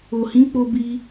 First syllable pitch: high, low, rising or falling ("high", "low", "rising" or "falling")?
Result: low